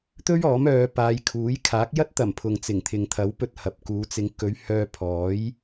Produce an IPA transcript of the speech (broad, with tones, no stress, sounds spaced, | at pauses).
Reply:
t̪ ɵ˥ ɥ ɔː˨˥ m œː˨˧ p aː˨˧ j kʰ uː˨˥ j kʰ aː˨˥ k̚ j ɐ˥ t̚ t̪ ɐ˨˩ m pʰ ʊ˨ ŋ t͡s ɪ˨˩ ŋ t̪ʰ ɪ˨ ŋ t̪ʰ ɐ˨˥ w p ɵ˧ t̚ h ɐ˨ p̚ k uː˨˧ t͡s ɪ˨˧ ŋ k ɵ˨˧ ɥ h œː˧ pʰ ɔː˨˥ j